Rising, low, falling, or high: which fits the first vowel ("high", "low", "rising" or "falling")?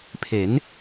rising